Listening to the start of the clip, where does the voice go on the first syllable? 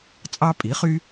high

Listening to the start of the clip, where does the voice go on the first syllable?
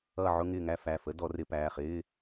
falling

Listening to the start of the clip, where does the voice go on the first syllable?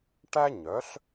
high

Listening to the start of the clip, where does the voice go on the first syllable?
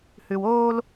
low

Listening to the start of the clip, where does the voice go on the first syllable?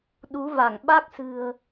rising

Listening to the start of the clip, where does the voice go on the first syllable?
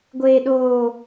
low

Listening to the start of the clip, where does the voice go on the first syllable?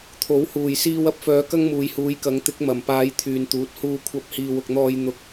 rising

